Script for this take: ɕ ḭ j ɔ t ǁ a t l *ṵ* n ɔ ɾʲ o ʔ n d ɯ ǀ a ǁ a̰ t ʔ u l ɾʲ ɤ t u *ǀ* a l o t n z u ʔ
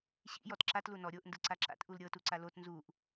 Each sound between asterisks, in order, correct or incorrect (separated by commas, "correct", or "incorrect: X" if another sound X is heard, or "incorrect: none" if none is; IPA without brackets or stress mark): incorrect: u, correct